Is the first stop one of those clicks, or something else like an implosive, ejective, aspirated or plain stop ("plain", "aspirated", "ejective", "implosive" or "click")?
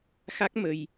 plain